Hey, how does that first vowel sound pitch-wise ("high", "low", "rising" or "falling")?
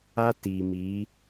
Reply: high